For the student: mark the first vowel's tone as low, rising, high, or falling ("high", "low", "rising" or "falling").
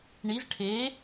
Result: rising